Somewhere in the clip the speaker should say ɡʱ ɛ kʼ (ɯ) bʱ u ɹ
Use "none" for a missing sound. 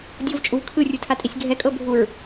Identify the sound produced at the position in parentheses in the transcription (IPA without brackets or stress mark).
ɤ